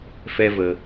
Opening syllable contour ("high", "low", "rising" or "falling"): high